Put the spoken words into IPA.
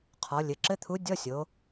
qʰ ɔ˩˧ lʲ ɘ˩˧ ǁ ɘ˧˥˧ t̪ʰ u˧˥ dʲ ɔ˧˥˧ sʲ o˩˧

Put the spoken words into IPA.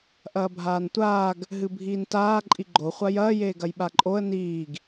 ʔ ɐː bʱ aː n tʷ aː ɡ | ɦ ɨ bʱ iː n t aː ǃʼ i ɡ͡ǃ o χʷ a j ɐː j eː ɡ ɐ j ɓ a ǃʼ o ə̯ n iː ɡ

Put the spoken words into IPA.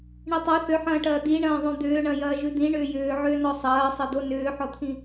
ɳ i tˤ œ θ ʏ ħ ɐ̃ː ʈ ɐː d i ɳ ɐ̃ː ðˤ õ d̪ ʏː ɳ ɐ̃ j ɐː ʒ ʉ d̪ ĩ ɳ ʏː j ʏː ʕ ʏː n ɔ sˤ ɐː sˤ ɐ d̪ o n ʏː ħ ɔ t̪ʰ ĩ

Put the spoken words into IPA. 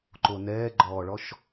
ǃ o n ɛː ɡ͡ǃ ɔː ɭ ɔ ʃ

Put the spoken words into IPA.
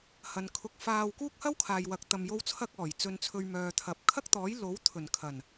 h ɐ˨˧ n kʰ ʊ˧ k̚ f aː˧ w k uː˥ k̚ h ɐ˥ w kʰ aː˨ j w ɐ˨ k̚ t̪ ɐ˧ m j o˥ w t͡sʰ ɐ˥ k̚ ɔː˨˩ j t͡s ɵ˨ n t͡sʰ ɵ˨ ɥ m œː˨ t̪ʰ ɐ˨ p̚ kʰ ɐ˥ k̚ t̪ ɔː˨˥ j l o˨˥ w t̪ʰ ɵ˨˩ n kʰ ɐ˨˩ n

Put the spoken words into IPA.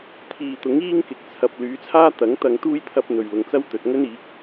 t̪ʰ iː˨ t̪ ʊ˨˥ ŋ iː˥ ŋ k ɪ˨ k̚ t͡sʰ ɐ˨ p̚ l yː˨˥ t͡sʰ aː˥ t̪ ɐ˨˥ ŋ t̪ ɐ˧ ŋ t̪ uː˥ j t̪ʰ ɐ˥ p̚ n̪ ɵ˨ ɥ l ʊ˨ ŋ t͡s ɐ˥ w t̪ ɵ˨ t̚ ŋ ɵ˥ n iː˨˥ k̚

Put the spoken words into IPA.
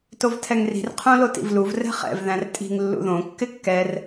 t o v tʰ ɛ ŋ r i̤ r qʰ õ l o t ḭ v l u v r ɛ̤ χ ɛ̰ v ð æ̃ r tʼ i̤ ŋ lː ṵ ð õ kː ɪ kː ɛ r

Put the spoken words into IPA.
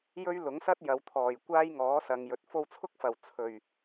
j ɵ˥ ɥ l ʊ˨˥ ŋ s ɐ˥ t̚ j ɐ˨˧ w t̪ʰ ɔː˨˩ j kʷ aː˥ j ŋ ɔː˨˥ s ɐ˨ ŋ j ɵ˨ t̚ f o˧ w t͡sʰ ʊ˥ k̚ f ɐ˨˩ w t͡sʰ ɵ˨˩ ɥ

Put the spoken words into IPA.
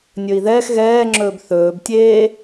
nʲ ɵ i̯ ð ɛː x ɣ ɛː ŋ͡ǁ ɵː b θ ɵː b tʲ eː

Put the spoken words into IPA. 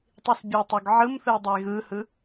tˤ i s bʲ ɛ tˤ œ ɡ ʕ ɯ m θ ɯ o̯ dˤ ə e̯ ɣ ɯ h ɯ

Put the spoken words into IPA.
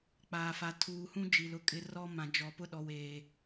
k͡p aː˨ f a˨ tʰ uː˨ h ũ˦ d͡ʒ i˨ l ʊ˨ kʼ ɪ˦ r ɔ˦ m ã˨ d͡ʒ ɔ˨ p ʊ˦ ɗ ɔ˨ w eː˨

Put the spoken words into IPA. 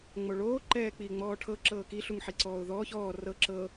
ŋ͡m o ɭ oː ǃ ɛː k͡p iː ŋ͡m ɔː ʈʰ ɤ ǁ ɤː k i ɬ u ŋ ħ i ǀ ɔː ʊ̯ ð ɔː ç ɔː r ɤ ǁ ɤ

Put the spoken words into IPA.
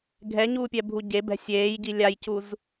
ɡʱ ɛ ɲ uː pʲ ɛ bʱ u ɟ e b ɛ̤ sʲ eː j ɟ i lʲ a j c u z

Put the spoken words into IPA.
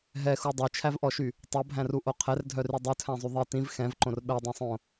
ɦ ɛ x u dˤ œ t͡ʃʰ æ v ʔ ɔ ʃ y | tˤ o bʱ æ̃ r u ʔ o qʰ ɛ r dʱ œ r y dˤ u tʰ æ̃ zˤ y ðˤ i t ĩ v x ɛ̃ v ǃ õ r ɓ ɛ dˤ ɛ̃ sˤ õ

